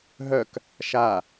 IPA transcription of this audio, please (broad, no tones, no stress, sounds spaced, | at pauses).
ɦ œ k | ʃ a